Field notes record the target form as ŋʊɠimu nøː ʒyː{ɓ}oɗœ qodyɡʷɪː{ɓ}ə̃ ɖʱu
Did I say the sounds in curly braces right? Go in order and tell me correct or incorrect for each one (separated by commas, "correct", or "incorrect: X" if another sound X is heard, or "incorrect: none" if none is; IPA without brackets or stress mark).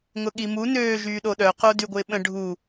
incorrect: ɗ, correct